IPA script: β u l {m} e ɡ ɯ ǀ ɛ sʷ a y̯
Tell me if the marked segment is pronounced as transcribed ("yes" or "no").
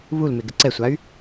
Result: yes